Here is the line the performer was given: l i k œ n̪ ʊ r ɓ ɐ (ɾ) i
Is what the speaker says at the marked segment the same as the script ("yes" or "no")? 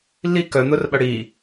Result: no